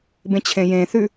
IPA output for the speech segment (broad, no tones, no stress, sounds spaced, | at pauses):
b ẽ t͡ɕʰ ẽ j ẽ θ ʉ